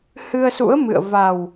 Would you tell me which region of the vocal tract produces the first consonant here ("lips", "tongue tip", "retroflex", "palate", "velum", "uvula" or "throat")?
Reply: throat